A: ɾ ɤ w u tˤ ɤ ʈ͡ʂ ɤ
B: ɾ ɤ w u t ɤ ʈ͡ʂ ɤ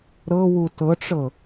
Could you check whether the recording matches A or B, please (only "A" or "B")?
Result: B